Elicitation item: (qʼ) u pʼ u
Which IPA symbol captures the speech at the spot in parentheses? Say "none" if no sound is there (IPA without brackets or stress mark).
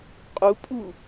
qʼ